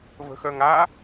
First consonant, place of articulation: labial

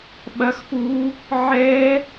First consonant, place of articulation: labial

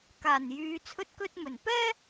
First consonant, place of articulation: velar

